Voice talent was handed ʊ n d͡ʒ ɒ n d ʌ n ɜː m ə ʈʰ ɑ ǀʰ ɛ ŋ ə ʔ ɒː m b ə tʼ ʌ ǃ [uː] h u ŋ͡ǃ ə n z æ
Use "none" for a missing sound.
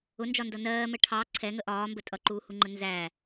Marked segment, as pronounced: uː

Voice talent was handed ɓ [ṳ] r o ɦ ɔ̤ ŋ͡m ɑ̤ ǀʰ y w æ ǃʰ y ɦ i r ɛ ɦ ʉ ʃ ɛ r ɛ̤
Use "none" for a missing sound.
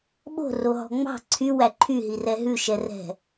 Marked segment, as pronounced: o̤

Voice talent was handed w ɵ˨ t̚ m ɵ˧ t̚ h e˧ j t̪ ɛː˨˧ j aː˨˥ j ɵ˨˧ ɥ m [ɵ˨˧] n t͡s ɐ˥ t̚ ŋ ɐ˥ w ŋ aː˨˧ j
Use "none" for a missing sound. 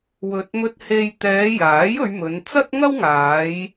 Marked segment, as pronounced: ɵ˨˧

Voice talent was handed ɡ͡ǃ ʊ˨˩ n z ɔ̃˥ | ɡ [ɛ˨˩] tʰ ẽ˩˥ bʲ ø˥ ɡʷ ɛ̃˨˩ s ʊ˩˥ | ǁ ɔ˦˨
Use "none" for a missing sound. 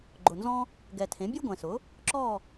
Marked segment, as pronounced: ɛ˨˩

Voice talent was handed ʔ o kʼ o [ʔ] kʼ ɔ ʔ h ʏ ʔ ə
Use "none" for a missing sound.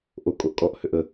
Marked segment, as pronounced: ʔ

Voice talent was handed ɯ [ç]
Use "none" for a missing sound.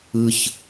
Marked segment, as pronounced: ç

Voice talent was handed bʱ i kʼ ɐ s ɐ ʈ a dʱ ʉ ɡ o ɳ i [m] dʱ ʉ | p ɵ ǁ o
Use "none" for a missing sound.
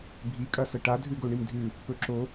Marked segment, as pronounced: m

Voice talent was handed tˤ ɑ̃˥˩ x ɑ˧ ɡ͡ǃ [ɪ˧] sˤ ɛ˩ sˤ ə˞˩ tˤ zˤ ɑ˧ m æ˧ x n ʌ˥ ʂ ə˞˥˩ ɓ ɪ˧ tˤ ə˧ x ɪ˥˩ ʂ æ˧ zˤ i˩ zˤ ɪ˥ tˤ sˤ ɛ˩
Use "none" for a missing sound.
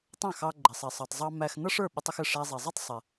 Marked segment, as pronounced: ɪ˩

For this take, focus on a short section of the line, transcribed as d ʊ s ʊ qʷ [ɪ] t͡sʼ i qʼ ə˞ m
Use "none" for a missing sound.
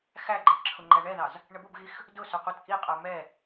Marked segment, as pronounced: ɪ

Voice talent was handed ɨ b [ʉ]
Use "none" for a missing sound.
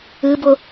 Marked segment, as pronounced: ʊ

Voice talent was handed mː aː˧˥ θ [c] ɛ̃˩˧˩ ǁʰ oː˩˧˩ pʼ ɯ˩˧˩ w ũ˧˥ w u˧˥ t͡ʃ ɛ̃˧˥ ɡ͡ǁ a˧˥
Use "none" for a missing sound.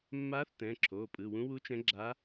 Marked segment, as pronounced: t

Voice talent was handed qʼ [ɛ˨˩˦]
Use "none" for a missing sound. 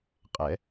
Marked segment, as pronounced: ɛ˨˩˦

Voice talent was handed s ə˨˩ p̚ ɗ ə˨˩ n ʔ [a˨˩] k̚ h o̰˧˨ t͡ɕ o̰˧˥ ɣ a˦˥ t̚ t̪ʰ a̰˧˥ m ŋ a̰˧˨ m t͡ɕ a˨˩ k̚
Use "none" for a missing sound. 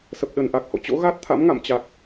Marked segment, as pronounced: a˨˩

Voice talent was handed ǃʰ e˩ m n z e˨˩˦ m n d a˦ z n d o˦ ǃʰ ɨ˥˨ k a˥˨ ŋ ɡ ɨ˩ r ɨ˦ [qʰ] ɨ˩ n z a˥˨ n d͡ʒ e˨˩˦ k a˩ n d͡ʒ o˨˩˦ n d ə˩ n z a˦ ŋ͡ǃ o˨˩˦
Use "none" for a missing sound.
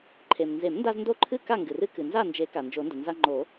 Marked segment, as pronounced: k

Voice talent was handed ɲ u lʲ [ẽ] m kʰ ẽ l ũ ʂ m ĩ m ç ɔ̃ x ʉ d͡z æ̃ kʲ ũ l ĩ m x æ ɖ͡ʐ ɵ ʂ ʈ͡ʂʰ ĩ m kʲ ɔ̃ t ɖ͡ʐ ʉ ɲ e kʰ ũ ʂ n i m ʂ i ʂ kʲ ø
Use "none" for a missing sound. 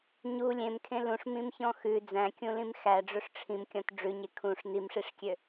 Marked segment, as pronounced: ẽ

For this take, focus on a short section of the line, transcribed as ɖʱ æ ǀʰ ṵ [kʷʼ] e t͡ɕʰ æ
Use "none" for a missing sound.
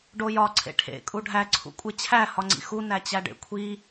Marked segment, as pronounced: kʷʼ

